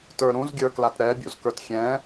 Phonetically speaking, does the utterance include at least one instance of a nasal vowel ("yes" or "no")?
yes